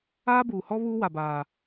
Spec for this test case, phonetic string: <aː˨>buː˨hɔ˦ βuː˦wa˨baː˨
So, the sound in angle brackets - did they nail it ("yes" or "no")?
no